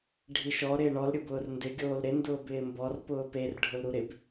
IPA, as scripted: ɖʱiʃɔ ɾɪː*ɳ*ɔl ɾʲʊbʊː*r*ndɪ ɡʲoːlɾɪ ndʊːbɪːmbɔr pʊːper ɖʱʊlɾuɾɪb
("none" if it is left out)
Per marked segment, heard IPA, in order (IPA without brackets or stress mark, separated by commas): ɳ, r